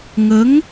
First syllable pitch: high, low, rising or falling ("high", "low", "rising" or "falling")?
rising